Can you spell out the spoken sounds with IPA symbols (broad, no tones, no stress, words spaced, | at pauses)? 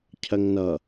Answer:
cʰɜŋnʌ